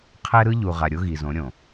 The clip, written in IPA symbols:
qʰɛ˦ɾɯ˦ ʎu˨ʁa˨ ɾʲo˦ɣi˨zõ˨˦ ɾʲõ˨

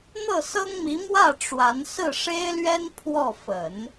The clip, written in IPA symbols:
n̪ɤ˥˩sɤ˥ŋmi˧˥ mwä˥˩ ʈ͡ʂwa˧˥n sɹ̩˥˩ʂe˥ɪ̯lɥɛ˥n pʰwɔ˥˩ fə˨˩˦n

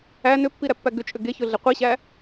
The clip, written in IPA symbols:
æ nʏpːiɾæpːæ ɡʏt͡ʃʼʏ ɡeçɵɮe qʷiɕæ

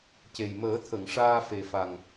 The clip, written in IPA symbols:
ce˨˩jməː˨˩˦t̪ʰə˨˩˨ŋ ʂaː˧fe˨˩fa˨˩ŋ

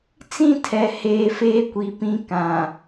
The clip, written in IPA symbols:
t͡sĩ˦tʰɛ˨ heː˨feː˦kʷi˨ pĩ˦ kã˨

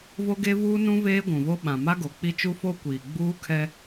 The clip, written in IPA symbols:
vo˦ɡe˦vuː˦nũ˦ veː˦ɡʷũ˨vo˦ ɓã˨ma˦ɡo˨k͡pi˦ t͡ʃu˦fo˦ kʷiː˨ɡ͡buː˦kʰɛ˦

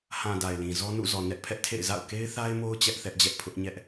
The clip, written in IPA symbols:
hã˨ da˨ɪ̯lĩ˨zɔ˦ nṵ˦˨zɔ˨ nɛ˦ʔpʰɛ˦ʔtʰḛ˦˨ɪ̯ za̰˦˨ʊ̯ke˦ɪ̯θa˦ɪ̯mo˦ʊ̯ t͡ɕɛ˦ʔθɛ˦ʔd͡ʑɛ˦ʔ pʰʊ˦ʔɲɛ˦ʔ

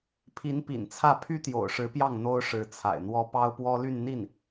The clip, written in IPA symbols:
pʰi˧˥npḭ˨˩nt͡sʰä˥˩ pʰy˥t̪jo̰˨˩ʊ̯ʂɻ̩˧˥pjɑ˥˩ŋ n̪o˥ʊ̯ʂɻ̩˧˥t͡sʰa̰˨˩ɪ̯n̪wɔ˥ pɑ˥ʊ̯pwɔ˥ly˥˧nn̪i˥˩n

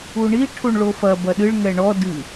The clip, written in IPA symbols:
uɳi ʈʰuɳɭofɐ bɐɗɨɭ ŋɛɳɔ dɨ

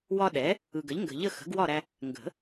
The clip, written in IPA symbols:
wɒ˦ɗɛ˩˥ | ɯ˨ɡə˩˥ʎŋɡə̤˨ʎə˥˨ xə̤˩˥ɡwɒ˥˨ɾæ˦ | ŋɡə̤˨˩˦

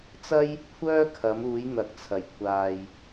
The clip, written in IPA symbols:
t͡sɐ˥j | kʷʰœː˥kʰɐ˨˧muː˨˧j n̪ɐ˨k̚t͡sʰɐ˨˩j kʷʰaː˨j

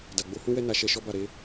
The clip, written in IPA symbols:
da˨ɡ͡bo˨˦hũ˦wɛ˦ na˧ʃɛ˧ ʃɔ˦ba˦˨ ɾe˧

